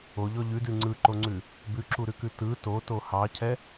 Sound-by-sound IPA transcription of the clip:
o ʎ ɔ ʎ ʉ d ʉ ŋ͡ǀ ɯ ǃ o ŋ͡ǀ ʉ | b ʉ ǁ u ɾ ʉ k ʉ t ɯ t o t o h ɑ cʰ ɛ

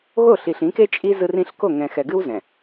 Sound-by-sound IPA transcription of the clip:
ɣ o˦˨ ɬ i˨ ɬ ĩ˨˦ k e˦ t͡ʃʼ i˦ z ɯ˦ r ĩ˦ ɬ k o˦˨ ŋ ɛ̃˨ x ɛ˨ ɡ ɨ˦ w z ɛ̃˨

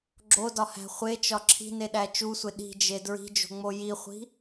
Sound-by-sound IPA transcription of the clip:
ɡ͡ǁ o d ɒ h æ̤ χʷ e t͡ʃ ɒ ǁʰ i̤ n e ɗ æ t͡ʃ u sʷ e ɗ i̤ d͡ʒ e d ɹ i̤ d͡ʒ o̤ ŋ͡m o j i χʷ i̤

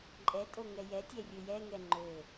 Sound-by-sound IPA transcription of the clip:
ǃʼ ɛ tʼ o ŋ ɛ j ɛ tʲ ɛ rʲ ɵ j ɛ ŋ ɛ ŋ͡ǃ ɵ

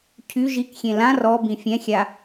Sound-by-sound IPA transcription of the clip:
cʰ y ʒ i k xʲ ẽ l ã r ɔ b ĩ fʲ ɛ̃ xʲ a

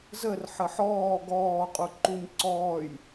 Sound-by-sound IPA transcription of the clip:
z əː r ħ ə ħ ɔː ɡ ɔː qʼ u ǃ u ɲ ǀ ɔː j

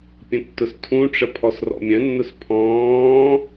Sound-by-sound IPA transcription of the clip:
pʲ ə̃ tː ʊ s tʰ ũ ʈ͡ʂ ə pʰ ɔ s r ɔ̰ mʲ œ̃ nː ʊ s pʰ ɔ̃ː

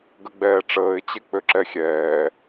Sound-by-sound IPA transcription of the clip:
ɡ ə ɡ͡b ɛː ʈ͡ʂ əː ɪ̯ t͡ɕ e k͡p ø ǁ ɛ xʲ ɛː

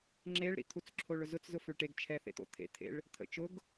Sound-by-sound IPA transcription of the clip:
ŋ͡ǁ e ɭ ɾ ḭ t̪ʰ u t͡s ǁʰ o ɭ ʊ z ʊ t͡s z ʊ f ʏ ɭ ʈ e ɡ t͡ʃʰ ɛ θ ḛ t̪ o̰ t̪ʰ ḛ t̪ʰ ḛ ɭ | t̪ʰ ə̰ t͡ʃ ʊ ɡ

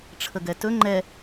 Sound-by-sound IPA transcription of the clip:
ʈ͡ʂʰ ə ɡ ɛ t ɵ ŋ͡ǃ ɛ

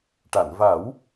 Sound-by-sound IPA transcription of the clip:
ʈ a˨˩˨ n v a˨˩˦ w

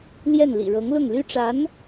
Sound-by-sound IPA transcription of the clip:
l j ɛ˥˩ n l ḭ˨˩ ɻ ɤ˧˥ ŋ l ʊ˥˩ ŋ l y˥ ʈ͡ʂ a˧˥ n

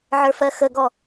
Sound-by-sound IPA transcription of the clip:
ʕ ə˞ f ɜ x ə ɡ ɔ

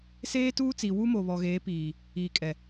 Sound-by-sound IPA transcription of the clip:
s eː˦ t uː˦ t͡s i˨ w u˦ m o˨ β ɔ˨ ɣ eː˨˦ p iː˨ | iː˨ kʼ ɛ˨

